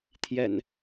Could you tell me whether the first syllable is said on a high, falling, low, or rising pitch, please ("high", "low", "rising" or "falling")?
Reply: low